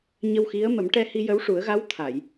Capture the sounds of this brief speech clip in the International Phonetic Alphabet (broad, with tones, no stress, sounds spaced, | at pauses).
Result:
ɲ ə˧ w x i˧˥ ə̯ m ə˨˩˦ m ʈ ɛ˧ h i˧ j ə˧˥ w ʂ u˨˩˦ ə̯ ɣ a˧˥ w t̪ʰ a˨˩˨ j